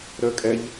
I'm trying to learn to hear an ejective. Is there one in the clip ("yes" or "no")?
yes